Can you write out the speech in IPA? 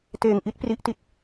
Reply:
t eː˧ ŋ ʔ i˦˥ t̚ p r i˦˥ ʔ t i˦˥ t̚

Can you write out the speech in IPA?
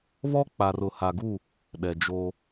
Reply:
β ɔ˦ k͡p a˨ r ʊ˨ h a˨ ɡ u˦˨ | ɗ ɛ˨ d͡ʒ o˦

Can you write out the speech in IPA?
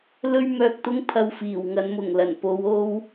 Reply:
l ɵ˥ ɥ m œː˧ k̚ t̪ ʊ˥ ŋ pʰ ɐ˧ w f iː˨˩ w ŋ ɐ˨˧ n m ʊ˨˩ ŋ l ɐ˨˩ n p o˨˧ w o˧ w

